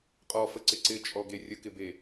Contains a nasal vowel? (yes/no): no